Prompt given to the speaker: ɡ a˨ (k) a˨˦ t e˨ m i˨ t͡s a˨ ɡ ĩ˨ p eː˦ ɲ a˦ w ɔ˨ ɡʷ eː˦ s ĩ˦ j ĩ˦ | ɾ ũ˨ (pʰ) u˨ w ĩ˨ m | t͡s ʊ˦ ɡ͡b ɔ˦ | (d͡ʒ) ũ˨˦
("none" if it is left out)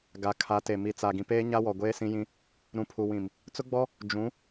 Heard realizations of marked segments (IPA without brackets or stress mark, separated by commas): kʰ, pʰ, d͡ʒ